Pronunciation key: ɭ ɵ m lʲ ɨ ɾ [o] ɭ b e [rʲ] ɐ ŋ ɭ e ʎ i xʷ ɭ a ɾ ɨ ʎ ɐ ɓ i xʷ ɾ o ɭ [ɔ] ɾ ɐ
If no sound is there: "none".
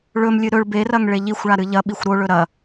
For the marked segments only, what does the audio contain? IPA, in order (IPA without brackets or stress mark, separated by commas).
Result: ɵ, r, ɵ